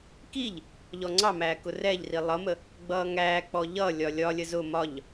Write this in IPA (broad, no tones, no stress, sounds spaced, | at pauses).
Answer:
k i ʎ | ʎ ɔ ŋ͡ǀ ɑ m æː k ʊ r ɛ ʎ r i lˠ ʌ m ə | ɡ͡b ʌː ŋ æː k͡p ɔ ʎ ʌ lʲ ɒ lʲ ɒ lʲ ə z ʊ m ɒ ʎ